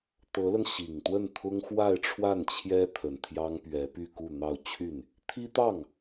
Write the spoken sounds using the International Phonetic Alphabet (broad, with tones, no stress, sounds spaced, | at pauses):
t̪ ɤ˧˥ l ə˧ n ɕ i˨˩ ŋ t̪ w ə˥˩ n t̪ʰ ʊ˥ ŋ x w a˥˧ ɪ̯ ʈ͡ʂʰ w a˥˩ n t͡ɕʰ j ɛ˥ t̪ʰ ə˨˩ n t̪ʰ j ɑ˥ ŋ p ɥ ɛ˧˥ p y˥˧ k u˥˧ n̪ ɑ˥˧ ʊ̯ t͡ɕʰ y˥˩ n | t̪ʰ i˥ t̪ ɑ˥˩ ŋ